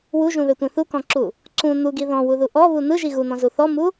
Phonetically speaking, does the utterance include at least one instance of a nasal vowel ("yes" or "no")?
yes